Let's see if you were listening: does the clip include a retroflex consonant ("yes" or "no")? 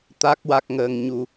no